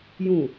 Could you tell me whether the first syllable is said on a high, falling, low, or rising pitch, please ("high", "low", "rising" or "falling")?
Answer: low